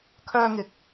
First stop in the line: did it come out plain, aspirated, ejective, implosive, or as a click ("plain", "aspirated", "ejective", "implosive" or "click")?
aspirated